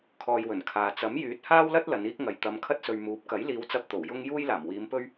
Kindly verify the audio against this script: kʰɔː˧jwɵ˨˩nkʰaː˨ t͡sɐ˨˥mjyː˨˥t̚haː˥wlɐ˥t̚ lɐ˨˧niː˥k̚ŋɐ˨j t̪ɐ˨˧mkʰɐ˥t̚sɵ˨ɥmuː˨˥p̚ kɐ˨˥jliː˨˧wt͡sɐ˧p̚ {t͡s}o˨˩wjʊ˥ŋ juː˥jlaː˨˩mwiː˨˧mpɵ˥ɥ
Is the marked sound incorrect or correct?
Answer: incorrect